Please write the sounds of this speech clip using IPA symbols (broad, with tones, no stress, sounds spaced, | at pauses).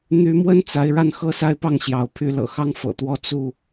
n̪ y˨˦ m w ə˦ n t͡s a˨˦ ɪ̯ ɻ a˥˨ n x ɤ˦ s a˥˨ ɪ̯ p ɑ˥˨ ŋ ɕ j ɑ˨˦ ʊ̯ pʰ y˨˦ l ɤ̰˨˩ x ɑ˦ ŋ f ɤ̰˨˩ t̪ w ɔ˦ t͡s u˥˨